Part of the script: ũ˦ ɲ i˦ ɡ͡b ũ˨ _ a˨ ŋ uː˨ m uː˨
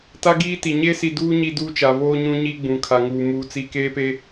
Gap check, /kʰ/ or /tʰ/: kʰ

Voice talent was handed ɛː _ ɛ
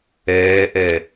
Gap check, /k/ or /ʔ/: ʔ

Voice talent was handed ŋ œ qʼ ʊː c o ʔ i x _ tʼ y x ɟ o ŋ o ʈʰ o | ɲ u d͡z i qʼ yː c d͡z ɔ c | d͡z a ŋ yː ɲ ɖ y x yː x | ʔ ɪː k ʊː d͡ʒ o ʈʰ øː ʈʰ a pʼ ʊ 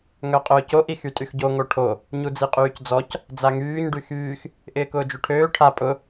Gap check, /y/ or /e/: y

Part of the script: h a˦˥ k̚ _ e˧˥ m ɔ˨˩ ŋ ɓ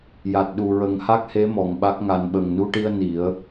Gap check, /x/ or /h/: h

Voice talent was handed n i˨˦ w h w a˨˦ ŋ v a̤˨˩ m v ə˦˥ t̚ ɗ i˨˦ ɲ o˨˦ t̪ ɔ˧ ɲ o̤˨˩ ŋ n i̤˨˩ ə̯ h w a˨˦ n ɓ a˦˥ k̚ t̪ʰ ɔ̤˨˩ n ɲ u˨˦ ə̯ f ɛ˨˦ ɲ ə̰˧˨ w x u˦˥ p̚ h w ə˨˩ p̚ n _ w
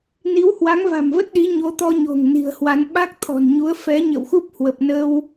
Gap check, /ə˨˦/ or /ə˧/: ə˧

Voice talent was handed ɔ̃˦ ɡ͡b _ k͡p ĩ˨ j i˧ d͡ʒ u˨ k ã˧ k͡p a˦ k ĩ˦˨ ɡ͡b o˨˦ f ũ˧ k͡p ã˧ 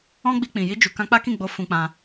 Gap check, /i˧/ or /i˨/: i˧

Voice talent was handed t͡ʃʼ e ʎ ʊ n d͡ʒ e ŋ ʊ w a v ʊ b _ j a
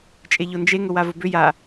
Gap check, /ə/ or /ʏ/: ʏ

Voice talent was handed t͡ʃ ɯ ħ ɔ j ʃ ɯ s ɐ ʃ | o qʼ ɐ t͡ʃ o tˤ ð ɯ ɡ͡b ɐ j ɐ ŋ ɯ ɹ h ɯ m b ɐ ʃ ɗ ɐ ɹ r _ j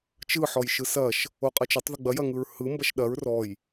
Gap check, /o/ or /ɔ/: ɔ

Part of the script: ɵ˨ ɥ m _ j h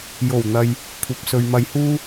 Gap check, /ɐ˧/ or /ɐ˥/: ɐ˧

